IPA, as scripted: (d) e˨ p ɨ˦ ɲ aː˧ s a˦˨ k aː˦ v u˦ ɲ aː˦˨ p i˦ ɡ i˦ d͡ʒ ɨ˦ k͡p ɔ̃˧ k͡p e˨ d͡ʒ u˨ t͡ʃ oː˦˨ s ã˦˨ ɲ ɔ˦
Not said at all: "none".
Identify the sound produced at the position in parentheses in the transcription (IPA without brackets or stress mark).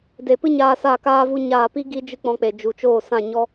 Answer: d